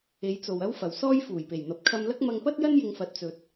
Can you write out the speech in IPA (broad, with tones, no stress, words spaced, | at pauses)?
e˨˧jt͡so˨w ɐ˥wfɐ˨w sɔː˥j fuː˨˩jpe˨˩jn̪ɐ˨˥p̚ kʰɐ˧mlɐ˥k̚ mɐ˧ŋpɐ˥t̚jɐ˥n jɪ˧ŋfɐ˨˥t̚t͡sɵ˨t̚